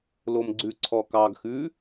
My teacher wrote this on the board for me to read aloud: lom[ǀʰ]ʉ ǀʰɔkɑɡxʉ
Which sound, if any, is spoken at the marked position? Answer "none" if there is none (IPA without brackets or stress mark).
ɡ͡ǀ